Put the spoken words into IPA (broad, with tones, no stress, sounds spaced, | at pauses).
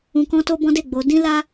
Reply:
ũ˧ k ɔ̃˦ t o˦ b ɔ̃˦ d e˦˨ ɡ͡b o˨˦ d ĩ˦ l a˦